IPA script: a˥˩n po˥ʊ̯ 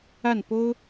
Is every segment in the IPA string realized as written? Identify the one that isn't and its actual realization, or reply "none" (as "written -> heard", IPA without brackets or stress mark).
none